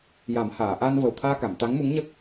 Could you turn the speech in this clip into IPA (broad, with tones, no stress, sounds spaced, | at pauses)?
j a˨˩˦ m h aː˨˩˨ ʔ a˧ n v ə˨˩ w t̪ʰ aː˧ k a˨˩˨ m t̪ a˧˥ ŋ m u˧˥ ŋ ɲ ə˦˥ k̚